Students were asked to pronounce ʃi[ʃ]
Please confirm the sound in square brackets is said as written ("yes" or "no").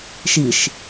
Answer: yes